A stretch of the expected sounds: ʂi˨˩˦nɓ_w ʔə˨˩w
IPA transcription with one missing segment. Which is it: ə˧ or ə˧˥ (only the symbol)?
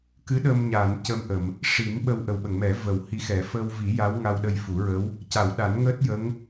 ə˧